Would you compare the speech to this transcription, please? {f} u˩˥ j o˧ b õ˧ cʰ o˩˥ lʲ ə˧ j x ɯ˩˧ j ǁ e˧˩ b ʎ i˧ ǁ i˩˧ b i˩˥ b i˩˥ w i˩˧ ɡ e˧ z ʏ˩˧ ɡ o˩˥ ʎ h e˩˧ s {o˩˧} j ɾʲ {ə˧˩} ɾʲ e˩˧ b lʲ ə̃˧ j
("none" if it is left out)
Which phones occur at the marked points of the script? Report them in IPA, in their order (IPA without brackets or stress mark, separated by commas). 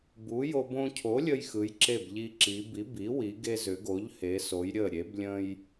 b, o˩˧, ə˧˩